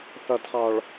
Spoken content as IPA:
θ ʌ˨ d χ ɑ˨ ɭ

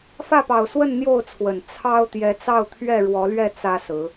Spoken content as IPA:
f ä˥˨ p ɑ˨˩ ʊ̯ s w ə˥˨ n n̪ j o˥˨ ʊ̯ t͡sʰ w ə˨˩ n t͡sʰ ɑ˦ ʊ̯ t̪ j ɛ˨˦ t͡s ɑ˥˨ ʊ̯ t̪ʰ ɥ ɛ˥˨ ɻ w ɔ˨˦ l ɥ ɛ˥˨ t͡s ä˦ s ɹ̩˨˦

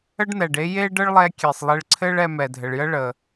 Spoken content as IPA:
ə˥ ɖ n̪ ɛ˩ ɖ e˥ j e˥ ɖ ə˥ ɭ lˠ ɛ˧ kʲ e˩ sˤ lˠ e˧ ɭ ǀʰ ɘ˥ ɭ ɛ˧ m ɛ˩ dʱ ɘ˩ ɭ j ə˥ ɭ ə˩

